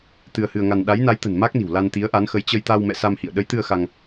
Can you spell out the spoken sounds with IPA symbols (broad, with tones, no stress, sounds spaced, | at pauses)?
t̪ ɨ˧ ə̯ h ɨ˧ ə̯ ŋ a˧ n ɗ a˨˦ j n a˨˦ j t̪ ə̤˨˩ n m a˦˥ k̚ n i̤˨˩ w l a˧ n t̪ i˨˦ ə̯ ʔ a˨˦ n x ə˨˦ j t͡ɕ ə˧ j t̪ a˧ w m ɛ̰˧˨ s a˧ m h ḭ˧˨ ə̯ ɗ ə˨˦ j t̪ ɨ˧ ə̯ x a˧ ŋ